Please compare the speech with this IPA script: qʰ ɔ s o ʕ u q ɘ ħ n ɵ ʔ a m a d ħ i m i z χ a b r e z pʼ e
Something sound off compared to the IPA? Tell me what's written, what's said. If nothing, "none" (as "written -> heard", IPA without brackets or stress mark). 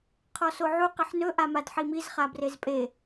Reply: none